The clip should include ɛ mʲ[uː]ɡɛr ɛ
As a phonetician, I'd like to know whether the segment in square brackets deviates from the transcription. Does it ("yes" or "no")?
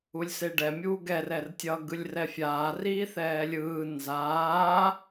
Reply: no